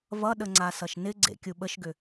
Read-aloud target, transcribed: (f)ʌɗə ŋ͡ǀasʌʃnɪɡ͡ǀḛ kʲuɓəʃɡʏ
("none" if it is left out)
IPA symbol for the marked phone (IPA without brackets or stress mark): v